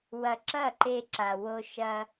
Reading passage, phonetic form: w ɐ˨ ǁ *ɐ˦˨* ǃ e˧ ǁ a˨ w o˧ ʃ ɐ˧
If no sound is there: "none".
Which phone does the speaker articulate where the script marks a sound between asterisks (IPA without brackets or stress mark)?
ɐ˦˨